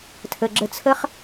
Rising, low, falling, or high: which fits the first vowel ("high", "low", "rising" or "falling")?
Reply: low